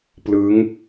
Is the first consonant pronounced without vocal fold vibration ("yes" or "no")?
yes